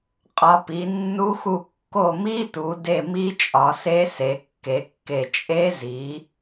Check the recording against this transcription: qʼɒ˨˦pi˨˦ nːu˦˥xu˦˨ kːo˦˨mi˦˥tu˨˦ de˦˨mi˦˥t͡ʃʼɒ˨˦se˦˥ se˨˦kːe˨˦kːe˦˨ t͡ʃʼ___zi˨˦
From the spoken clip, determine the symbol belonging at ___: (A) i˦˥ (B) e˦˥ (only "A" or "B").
B